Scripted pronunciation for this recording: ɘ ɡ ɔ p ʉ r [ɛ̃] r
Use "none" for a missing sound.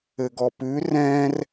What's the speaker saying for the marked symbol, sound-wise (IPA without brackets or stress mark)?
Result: ɛ̃